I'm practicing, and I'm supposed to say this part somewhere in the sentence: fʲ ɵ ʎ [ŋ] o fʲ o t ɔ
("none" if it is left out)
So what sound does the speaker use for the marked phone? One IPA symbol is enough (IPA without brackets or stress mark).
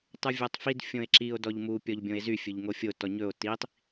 ŋ